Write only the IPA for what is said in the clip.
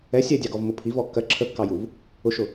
ɛ sʲ ɛ dʲ ɑ ɡ ɔ v m ʊ pʰ i v ɔ kː ɜ ǁʰ ə kː ɑ j u v | ʊ ʃ ʊ

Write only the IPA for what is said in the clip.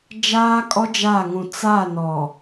d͡ʒ aː˦ kʼ ɔ˦ d͡ʒ a˦˨ ŋ ũ˨ t͡s a˦˨ n ɔ˨

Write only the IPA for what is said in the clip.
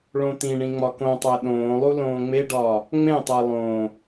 ɭ õ t̪ ĩ ɳ ĩ ŋ͡m ɒ k õ tˤ æ ɗ õː lˠ u l õː ŋ͡m e ɖ ɒː | ŋ͡m ẽ tˤ æ lˠ õː

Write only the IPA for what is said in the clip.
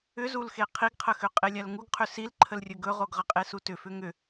ʏ z u l x e qʰ i ɡ qʰ ə x ʏ qʼ e lʲ a l ŋ u ɡ qʰ ʏ s i l ǃʰ ə l rʲ ɵ ɡ ɵ ʁ o ɡ ʁ ə qʼ e s u t ʏ f ʏ ŋ ʏ

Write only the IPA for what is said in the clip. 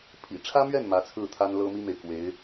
pʰ ḭ˨˩ ʈ͡ʂʰ ä˥ m ɥ ɛ˥˩ n m ä˧˥ t͡sʰ ɹ̩˥˩ t̪ʰ a˥ n l ɤ˥ m i˥ m e˨ ɪ̯ k w e˧˥ ɪ̯

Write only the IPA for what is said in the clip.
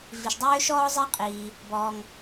v i˩ ʃ dˤ øː˥ ʃ ɔː˥ zˤ i˥ qʼ iː˩ | b ɔː˩ ŋ

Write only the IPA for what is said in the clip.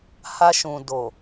h a˧ ʃ ũ˨ d o˨

